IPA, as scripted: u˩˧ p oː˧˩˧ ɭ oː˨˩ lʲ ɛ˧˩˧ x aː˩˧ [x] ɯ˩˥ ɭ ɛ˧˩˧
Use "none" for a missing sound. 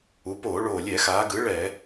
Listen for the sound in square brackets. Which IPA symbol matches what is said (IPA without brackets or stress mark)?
ɡ